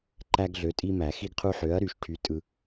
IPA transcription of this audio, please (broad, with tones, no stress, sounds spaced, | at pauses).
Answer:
ǃ æ˦ ɡ ɮ ø˨˥ tʼ i˦ m æ˨˩˦ x i˦ ɡ qʰ u˦ ħ ø˨˥ ɐ̯ ɾ y˨˩˦ ʃ ʈʰ y˨˥ tʼ ɯ˦